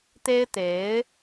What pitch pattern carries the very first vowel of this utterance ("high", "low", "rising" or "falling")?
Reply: high